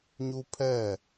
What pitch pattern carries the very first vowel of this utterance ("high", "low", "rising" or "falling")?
high